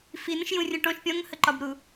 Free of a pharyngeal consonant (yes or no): yes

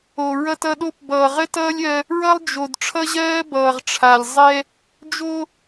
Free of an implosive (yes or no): no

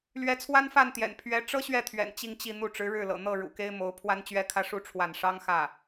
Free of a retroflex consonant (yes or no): no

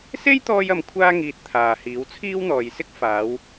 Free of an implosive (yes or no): yes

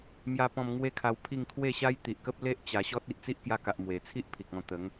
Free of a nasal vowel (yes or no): no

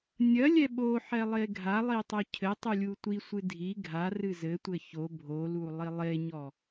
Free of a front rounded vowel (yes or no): yes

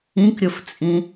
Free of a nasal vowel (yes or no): no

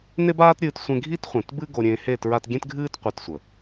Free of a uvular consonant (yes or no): no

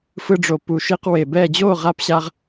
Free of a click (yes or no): yes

